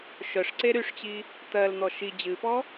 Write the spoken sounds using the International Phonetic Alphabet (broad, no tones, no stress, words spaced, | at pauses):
ʃœʂǀe ɾyʂt͡ɕi | t̪ɜln̪ɔ ʃi d͡ʑɨpɔ